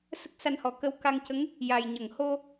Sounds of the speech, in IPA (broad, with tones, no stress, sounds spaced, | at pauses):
s ə˦˥ k̚ s a˧ n h ɔ˨˩ k ə˧ w k a˧ ŋ c ə˧˥ ŋ | j a˨˩ j ɲ ə˨˩˨ ŋ h o˧